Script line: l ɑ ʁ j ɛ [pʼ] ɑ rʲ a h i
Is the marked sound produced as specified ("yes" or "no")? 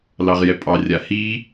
yes